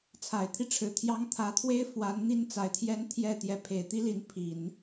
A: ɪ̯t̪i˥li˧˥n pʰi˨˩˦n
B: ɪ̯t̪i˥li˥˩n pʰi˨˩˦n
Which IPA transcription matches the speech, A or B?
A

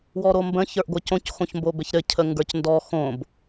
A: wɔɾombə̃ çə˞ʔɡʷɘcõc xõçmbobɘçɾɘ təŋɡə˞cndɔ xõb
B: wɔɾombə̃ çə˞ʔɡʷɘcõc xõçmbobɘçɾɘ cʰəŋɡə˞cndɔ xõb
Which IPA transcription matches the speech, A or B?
B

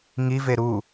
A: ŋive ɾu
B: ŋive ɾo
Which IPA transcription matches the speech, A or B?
A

